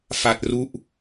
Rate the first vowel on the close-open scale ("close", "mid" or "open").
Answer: open